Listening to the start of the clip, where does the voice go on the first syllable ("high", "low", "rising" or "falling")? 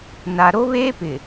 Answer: low